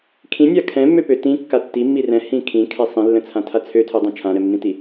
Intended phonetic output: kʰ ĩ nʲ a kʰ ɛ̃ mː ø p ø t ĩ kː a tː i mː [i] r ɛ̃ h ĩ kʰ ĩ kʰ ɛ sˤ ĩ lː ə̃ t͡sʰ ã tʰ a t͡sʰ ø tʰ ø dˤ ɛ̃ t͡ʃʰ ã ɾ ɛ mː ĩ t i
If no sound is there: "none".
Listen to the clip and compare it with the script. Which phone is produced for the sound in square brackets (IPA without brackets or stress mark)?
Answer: i